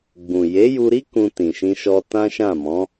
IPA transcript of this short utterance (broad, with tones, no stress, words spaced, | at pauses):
ɡ͡bũ˨ je˨˦ju˧ɾi˦ kũ˧tĩ˨ʃĩ˧ʃɔ˧ tã˦ʃã˦˨mɔ̃˨˦